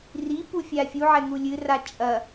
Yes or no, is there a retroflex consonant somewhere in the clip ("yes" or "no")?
no